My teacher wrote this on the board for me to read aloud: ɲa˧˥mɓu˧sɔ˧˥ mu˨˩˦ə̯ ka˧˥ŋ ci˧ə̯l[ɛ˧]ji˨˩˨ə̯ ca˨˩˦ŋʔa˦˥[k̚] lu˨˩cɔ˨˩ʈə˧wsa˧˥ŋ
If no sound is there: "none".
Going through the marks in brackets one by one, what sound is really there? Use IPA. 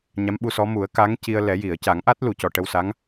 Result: ɛ˨˩˦, t̚

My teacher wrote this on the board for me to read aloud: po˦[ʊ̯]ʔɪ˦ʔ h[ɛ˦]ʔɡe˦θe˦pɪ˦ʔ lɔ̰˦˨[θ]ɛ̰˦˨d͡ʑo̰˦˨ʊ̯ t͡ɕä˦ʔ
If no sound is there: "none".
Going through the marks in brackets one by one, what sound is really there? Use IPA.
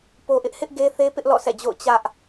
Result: none, ɪ˦, s

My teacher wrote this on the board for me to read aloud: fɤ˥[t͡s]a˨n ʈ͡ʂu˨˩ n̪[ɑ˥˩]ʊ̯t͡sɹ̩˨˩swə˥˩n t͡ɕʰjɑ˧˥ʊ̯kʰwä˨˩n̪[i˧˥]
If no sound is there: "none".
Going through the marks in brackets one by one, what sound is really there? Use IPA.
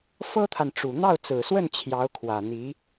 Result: t̪ʰ, ɑ˥˩, i˧˥

